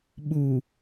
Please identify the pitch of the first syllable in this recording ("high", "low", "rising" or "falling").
low